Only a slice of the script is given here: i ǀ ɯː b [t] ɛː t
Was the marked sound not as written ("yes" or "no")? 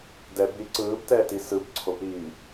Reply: no